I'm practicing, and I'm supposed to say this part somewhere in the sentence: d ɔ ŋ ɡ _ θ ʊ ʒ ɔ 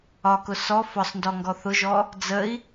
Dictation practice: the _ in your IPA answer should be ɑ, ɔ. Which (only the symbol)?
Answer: ɔ